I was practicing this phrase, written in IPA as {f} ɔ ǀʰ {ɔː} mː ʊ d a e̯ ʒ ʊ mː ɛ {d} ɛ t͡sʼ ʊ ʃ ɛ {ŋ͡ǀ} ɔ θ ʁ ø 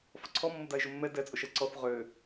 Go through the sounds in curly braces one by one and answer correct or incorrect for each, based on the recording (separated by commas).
correct, incorrect, correct, incorrect